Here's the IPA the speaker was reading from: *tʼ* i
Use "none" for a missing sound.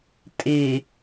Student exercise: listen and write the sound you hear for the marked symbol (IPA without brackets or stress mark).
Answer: tʼ